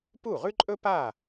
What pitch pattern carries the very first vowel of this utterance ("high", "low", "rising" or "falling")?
falling